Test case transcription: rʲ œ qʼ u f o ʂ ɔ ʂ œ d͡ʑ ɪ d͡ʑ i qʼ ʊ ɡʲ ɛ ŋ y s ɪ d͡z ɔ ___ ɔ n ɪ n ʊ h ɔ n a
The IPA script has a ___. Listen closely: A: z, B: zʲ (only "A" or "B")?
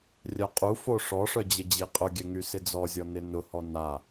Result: B